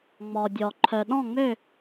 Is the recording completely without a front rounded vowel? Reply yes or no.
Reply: no